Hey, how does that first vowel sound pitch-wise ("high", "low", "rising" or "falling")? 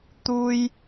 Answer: high